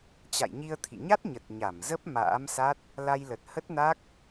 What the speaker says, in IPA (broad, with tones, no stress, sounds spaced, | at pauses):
t͡ɕ a̰˧˨ j ɲ i˧ ə̯ t̪ʰ ḭ˧˨ ɲ a˦˥ t̚ ɲ ə˨˩ t̚ ɲ a˧˩ m z ə˦˥ p̚ m a̰ː˧˥ m s a˦˥ t̚ | l a˧ j l ə˨˩ t̚ h ə˦˥ t̚ n a˦˥ k̚